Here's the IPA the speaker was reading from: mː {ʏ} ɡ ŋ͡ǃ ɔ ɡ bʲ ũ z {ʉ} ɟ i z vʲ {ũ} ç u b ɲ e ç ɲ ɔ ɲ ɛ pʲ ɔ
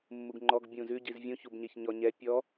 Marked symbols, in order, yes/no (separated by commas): no, yes, yes